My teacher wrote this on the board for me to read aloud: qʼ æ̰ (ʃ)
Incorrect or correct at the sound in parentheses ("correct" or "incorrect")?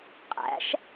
correct